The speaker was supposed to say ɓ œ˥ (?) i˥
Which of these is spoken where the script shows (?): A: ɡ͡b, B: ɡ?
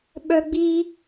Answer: A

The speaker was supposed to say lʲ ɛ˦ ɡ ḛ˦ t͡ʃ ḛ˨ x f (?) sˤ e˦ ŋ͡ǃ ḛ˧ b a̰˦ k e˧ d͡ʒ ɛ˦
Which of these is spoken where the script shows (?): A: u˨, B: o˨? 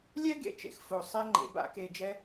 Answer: B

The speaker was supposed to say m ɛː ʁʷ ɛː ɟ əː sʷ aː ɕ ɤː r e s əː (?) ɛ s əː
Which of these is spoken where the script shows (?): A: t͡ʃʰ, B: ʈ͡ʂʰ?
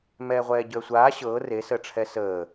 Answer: B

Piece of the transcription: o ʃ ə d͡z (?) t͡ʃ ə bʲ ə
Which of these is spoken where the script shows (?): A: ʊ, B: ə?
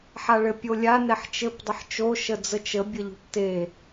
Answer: B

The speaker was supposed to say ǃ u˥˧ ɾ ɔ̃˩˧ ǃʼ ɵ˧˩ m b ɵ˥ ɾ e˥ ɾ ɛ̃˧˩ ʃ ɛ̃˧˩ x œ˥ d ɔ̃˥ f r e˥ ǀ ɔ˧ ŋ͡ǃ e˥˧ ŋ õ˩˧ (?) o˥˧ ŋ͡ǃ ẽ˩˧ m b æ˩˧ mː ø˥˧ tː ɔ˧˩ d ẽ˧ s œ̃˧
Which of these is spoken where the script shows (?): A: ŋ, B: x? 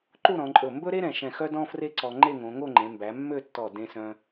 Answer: A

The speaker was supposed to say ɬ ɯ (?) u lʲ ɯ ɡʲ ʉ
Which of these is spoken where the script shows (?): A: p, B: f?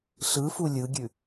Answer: B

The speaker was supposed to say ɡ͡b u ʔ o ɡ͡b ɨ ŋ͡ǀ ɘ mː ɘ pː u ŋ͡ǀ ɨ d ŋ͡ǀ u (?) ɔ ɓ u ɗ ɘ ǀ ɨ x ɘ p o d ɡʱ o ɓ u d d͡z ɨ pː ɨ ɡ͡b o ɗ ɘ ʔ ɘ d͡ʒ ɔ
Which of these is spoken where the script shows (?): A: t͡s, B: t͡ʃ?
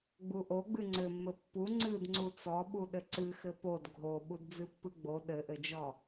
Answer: A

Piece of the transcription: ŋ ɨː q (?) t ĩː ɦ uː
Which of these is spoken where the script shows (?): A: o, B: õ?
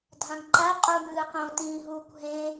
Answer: B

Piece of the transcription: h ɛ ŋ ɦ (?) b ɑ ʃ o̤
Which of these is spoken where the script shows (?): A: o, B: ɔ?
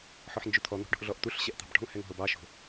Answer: A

